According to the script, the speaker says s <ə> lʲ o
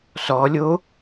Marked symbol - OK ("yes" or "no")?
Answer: no